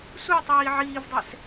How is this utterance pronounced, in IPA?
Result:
sutˤiː ʕiːvdˤɛs

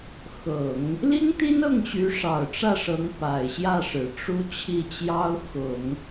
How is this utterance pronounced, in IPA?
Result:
xɤ˨˩˦ŋ | li˥ŋt̪i˥nɤ˥˩ŋɕy˧˥ ʂɑ˨˩ʊ̯ʈ͡ʂä˥˩ʂɤ˧˥ŋ pa˨˩ɪ̯ɕjä˥˩ʂɻ̩˨˩ ʈ͡ʂu˥ t͡ɕʰi˥˩t͡ɕjɑ˥ʊ̯ xʊ˨˩˦ŋ

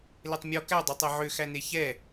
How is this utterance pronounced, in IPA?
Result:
letˤmʲɔ kæ dˤøtˤeʕø xæneçɛ

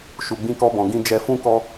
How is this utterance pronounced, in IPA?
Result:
ʃu˧ɡ͡bĩ˦kɔ˦bɔ̃˧ ɡĩ˧ d͡ʒɛ˧fũ˦ kɔ˦

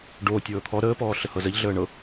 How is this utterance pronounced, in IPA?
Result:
ɖoː tʲɤːt̪ʰɔ ɾəː pɔːɬəhɤzəʎ ɮəːɳɤ

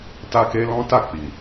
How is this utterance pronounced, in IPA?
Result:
ta˦ke˦lɔ̃˦ ta˦˨ k͡pi˨

